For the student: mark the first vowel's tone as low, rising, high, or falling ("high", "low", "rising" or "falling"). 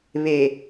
low